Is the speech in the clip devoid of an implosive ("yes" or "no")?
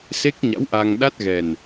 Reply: no